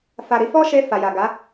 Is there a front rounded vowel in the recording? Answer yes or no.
no